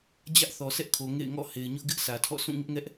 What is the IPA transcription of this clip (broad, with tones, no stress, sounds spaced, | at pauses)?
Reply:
d͡ʑ ä˦ ʔ θ ɔ˨ s ɛ˦ ʔ kʰ o˨ ŋ ḛ˦˨ ɪ̯ ŋ ɔ̰˦˨ h e˨ ɪ̯ ɲ ʊ˦ ʔ ɡ ɪ˦ ʔ s ä˨ tʰ ɔ̰˦˨ s ũ˦˨ ŋ ɪ˦ ʔ ŋ ɛ˦ ʔ